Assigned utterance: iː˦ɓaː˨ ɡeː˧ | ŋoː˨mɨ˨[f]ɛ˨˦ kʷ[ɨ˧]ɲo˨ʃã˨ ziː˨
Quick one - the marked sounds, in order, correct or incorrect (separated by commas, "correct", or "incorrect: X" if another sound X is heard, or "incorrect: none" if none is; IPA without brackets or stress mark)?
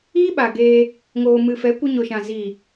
correct, correct